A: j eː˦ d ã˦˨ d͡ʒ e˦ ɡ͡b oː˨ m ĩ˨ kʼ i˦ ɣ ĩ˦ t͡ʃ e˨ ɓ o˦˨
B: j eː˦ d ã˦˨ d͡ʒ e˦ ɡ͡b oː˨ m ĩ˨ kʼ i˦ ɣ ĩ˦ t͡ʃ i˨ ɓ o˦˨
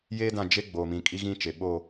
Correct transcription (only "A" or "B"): A